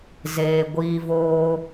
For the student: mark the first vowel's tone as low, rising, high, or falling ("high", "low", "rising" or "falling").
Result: low